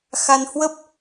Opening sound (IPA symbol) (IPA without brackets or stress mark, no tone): x